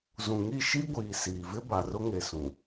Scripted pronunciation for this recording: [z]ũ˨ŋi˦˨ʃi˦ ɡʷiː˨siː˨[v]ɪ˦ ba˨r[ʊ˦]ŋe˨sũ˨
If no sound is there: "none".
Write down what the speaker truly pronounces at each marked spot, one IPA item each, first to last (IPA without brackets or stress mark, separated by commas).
z, v, ʊ˦